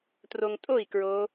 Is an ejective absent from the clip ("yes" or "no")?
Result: no